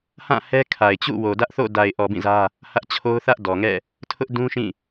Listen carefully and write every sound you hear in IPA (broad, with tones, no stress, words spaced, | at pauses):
hã˦˨ hɛ˦kʰa˨ɪ̯t͡ɕṵ˦˨ wo˨dä˦ʔθo̰˦˨ da˨ɪ̯ʔɔ˨ bĩ˦˨zä˦ | hä˦ʔt͡ɕʰo˦ʊ̯ θä˦ʔdɔ˨ŋɛ̰˦˨ | tʰʊ˦ʔdũ˦ʃĩ˦˨